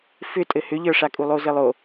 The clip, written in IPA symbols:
fʏ tʼɘhʏʎə˞ʂa kʼulˠozɘlˠo

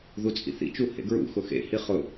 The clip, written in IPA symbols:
ðut͡sʼḭθḭt͡ʃu hḛɡɹṵxʊ xḛhi χʊ

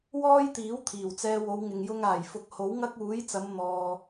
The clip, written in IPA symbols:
wɔː˥jt̪iː˨˥w t̪ʰiː˨˩wt͡sɛː˧wo˨˧wŋɪ˨ŋ jʊ˧ŋaː˨˩jfʊ˨k̚ ho˨˥wŋɐ˥k̚ uː˨˥jt͡sɐ˨˧m n̪ɔː˨

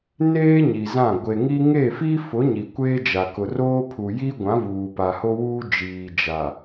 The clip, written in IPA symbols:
neː˦ ɲi˨zã˦˨ ɡʷe˨ŋi˦ ŋe˦˨fi˦fʊ˨˦ ɲi˨ kʷeː˦d͡ʒa˨ kʊ˨roː˦ pʰu˨ji˦ɡʷã˨˦ vuː˨pa˨ho˦wuː˦ d͡ʒiː˨d͡ʒa˨

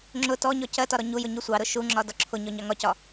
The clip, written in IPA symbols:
ŋ͡ǁʊ tɔɲɔ cɜtɒ ɾɔɲujʊ ɲusʷɑɾʊ ʃuŋ͡ǁɒ dɒǁʰʊɲɔ ɲɑŋɒcɒ

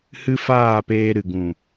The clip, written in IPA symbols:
hɨ˦faː˦˨peː˧ ɾɨ˨ɡũ˨

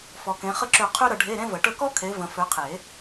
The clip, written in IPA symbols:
fɔ˨kẽ˨˦ χə˥ǁø˦˨ qʰø˥ ɾə˨˦ɖʱe˧˥˧ɾẽ˥və˨˩˦ ʈə˦˨kɔ˥ kʰe˨˦və̃˨ fø˨˦qʰe˨˩˦

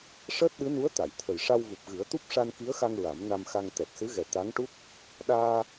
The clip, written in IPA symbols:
ʂəː˦˥t̚ɗɨ˧˥nu˧˥ə̯ t̪a˨˩˨jt̪ʰə˨˩j ʂa˧wvu˨˩p̚ɣɨ˨˩˦ə̯ t̪u˦˥p̚ʂa˧n ki˧˥ə̯xa˧ŋ ɹa˨˩˦m na˧mxa˧ŋ t̪ɛ˨˩t̚sɨ˧˥ɣɛ˨˩ t̪a˧˥ŋʈu˦˥k̚ | ɗaː˧

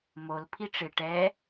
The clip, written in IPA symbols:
mol pʰiʈ͡ʂɪ ʈɛ

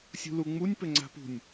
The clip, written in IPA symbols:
sʲṳluŋ͡munʲ pɘŋ͡ǀa̤pṳnʲ

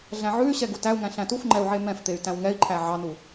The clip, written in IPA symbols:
ɮæ̃ʕʉy̯ɕɛ ɡutæu̯ŋæ̃ ɬæ̃tufŋ͡ǃɛu̯ ʕemɛ̃ft̪ey̯ tæ̃wŋɛi̯ǃʰæ ʕɑnu

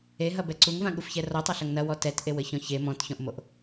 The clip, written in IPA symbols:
eɦɐbɛ ǀuŋvãɠufçɛ rɔtˤɐɬɐŋ nɐwɔ tɛtʔewɘçɔ̃ç e mɔ̃tçɔ̃ʔmoʔ

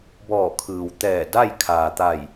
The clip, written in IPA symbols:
bɔː˧˩kʰɯː˩wt̪ɛː˧˩ da˥˨j kʰaː˩t̪a˧˩j

